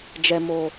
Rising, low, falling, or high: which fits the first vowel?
low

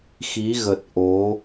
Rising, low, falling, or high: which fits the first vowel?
rising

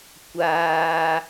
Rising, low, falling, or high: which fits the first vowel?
low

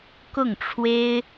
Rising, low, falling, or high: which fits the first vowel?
falling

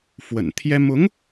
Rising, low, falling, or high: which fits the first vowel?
low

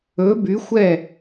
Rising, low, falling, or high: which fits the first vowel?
rising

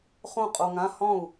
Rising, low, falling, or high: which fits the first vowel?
falling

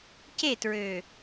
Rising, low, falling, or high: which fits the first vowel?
falling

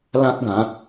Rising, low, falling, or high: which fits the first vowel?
high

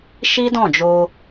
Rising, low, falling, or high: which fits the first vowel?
high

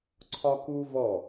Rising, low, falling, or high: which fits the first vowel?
high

